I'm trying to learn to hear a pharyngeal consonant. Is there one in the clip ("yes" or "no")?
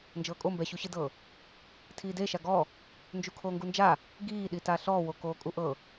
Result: no